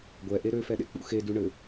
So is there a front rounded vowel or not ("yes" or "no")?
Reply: yes